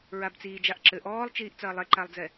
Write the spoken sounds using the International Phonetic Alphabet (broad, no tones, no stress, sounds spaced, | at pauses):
ɹ a b t͡s iː d͡ʒ a ʔ ǁ ɘ ʔ ɔː lˠ t͡ʃ iː ʔ t͡s ɐː lˠ ɛ ǃ a lˠ d͡z ɛ